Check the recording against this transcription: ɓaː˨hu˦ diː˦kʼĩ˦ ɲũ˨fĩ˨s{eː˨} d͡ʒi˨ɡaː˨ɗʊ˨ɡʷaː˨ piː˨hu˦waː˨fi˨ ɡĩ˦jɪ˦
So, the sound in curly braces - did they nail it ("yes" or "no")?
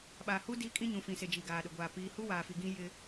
no